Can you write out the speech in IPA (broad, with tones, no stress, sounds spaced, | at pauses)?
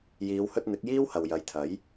j iː˨˧ w h ɵ˧ t̚ n̪ ɪ˨˥ k̚ j iː˥ w h ɐ˨ w j ɐ˨˧ j t̪ʰ ɐ˨˥ j